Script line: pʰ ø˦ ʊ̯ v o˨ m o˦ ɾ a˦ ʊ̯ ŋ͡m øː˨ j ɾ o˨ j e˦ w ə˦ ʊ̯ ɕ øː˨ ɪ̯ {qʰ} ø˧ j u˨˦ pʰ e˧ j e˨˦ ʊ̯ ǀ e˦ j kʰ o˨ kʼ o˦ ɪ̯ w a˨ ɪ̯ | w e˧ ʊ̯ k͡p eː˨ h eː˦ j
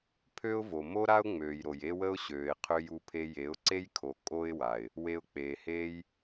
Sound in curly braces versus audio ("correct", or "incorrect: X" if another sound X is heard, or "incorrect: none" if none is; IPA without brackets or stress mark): correct